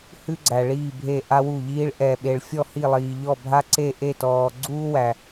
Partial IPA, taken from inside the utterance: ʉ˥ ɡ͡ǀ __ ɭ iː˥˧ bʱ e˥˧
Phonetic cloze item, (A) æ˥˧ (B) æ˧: B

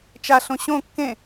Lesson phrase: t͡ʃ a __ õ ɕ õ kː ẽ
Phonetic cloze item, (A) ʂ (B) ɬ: B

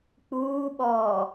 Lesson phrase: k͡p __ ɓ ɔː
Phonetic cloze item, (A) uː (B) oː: A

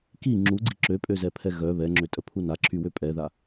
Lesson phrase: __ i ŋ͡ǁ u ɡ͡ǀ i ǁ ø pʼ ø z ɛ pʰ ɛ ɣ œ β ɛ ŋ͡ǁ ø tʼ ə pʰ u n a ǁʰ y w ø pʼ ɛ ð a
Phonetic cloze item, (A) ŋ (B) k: B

